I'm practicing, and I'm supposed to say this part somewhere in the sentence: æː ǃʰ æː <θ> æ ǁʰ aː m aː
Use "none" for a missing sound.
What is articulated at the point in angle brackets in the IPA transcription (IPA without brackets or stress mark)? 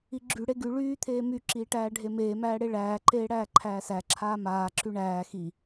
s